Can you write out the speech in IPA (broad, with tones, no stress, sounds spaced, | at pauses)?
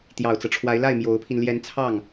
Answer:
t̪ j ɑ˨˩ ʊ̯ t͡s ɤ˦ ʈ͡ʂʰ w a˧˥ ɪ̯ l a˥˩ ɪ̯ m j o˧˥ ʊ̯ pʰ i˧ n l j ɛ˧˥ n t͡sʰ ɑ˥˩ ŋ